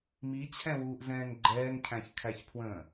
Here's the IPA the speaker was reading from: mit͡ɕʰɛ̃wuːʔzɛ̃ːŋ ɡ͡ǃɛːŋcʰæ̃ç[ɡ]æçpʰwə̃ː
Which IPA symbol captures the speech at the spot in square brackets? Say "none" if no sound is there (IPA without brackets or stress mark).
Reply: kʰ